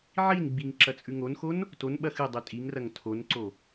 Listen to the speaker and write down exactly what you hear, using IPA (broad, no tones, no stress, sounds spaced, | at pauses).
ʕ i n ɡ͡b i ŋ ǁ ɐ t͡sʼ ʉ ŋ o n x o n | t o n ɓ ɐ x ɨ dˤ ʉ tʼ i ŋ r ɐ ŋ tʰ o n ǀ o